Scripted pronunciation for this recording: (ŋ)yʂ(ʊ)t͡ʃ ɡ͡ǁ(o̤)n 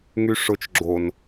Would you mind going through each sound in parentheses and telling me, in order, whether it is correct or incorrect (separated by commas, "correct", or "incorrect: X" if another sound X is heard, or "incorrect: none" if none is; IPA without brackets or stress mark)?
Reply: correct, correct, incorrect: o